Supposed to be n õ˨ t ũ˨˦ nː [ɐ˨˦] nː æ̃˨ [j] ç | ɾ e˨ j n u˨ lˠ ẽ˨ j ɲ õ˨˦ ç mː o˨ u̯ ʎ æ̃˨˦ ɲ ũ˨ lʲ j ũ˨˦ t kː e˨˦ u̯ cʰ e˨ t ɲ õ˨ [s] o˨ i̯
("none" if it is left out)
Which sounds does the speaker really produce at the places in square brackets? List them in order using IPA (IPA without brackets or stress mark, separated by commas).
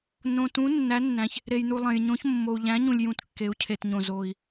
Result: æ˨˦, none, z